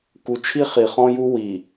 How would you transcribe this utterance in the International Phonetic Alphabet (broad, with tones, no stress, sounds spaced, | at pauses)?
k u˨ t͡ʃʰ i˦ χ i˨ χ ɔ̃˦ j u˦ w i˨